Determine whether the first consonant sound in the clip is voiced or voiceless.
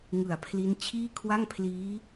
voiced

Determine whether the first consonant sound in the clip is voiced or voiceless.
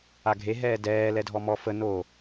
voiced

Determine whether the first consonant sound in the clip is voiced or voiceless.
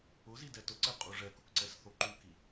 voiced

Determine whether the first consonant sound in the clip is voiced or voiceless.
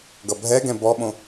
voiced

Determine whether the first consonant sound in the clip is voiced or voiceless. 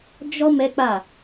voiced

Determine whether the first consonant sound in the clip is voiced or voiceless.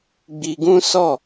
voiced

